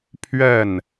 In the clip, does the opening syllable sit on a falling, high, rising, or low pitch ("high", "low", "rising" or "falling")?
falling